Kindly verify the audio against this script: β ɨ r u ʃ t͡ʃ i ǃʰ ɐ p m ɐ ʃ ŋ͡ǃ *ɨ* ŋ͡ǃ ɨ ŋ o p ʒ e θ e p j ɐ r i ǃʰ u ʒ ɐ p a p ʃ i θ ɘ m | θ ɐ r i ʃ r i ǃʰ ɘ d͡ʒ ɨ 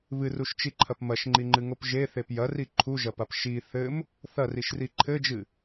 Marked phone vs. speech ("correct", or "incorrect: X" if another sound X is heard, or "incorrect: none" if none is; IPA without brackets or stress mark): incorrect: i